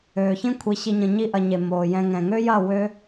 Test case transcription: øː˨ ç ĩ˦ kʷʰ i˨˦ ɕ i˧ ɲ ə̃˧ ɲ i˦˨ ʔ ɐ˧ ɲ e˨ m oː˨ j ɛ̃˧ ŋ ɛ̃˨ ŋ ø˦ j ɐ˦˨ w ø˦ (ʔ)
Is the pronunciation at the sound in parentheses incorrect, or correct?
incorrect